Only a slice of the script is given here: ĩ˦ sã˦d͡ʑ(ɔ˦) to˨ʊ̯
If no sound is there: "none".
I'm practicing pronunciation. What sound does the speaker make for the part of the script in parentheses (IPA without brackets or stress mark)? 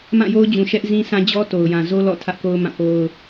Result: ɔ˦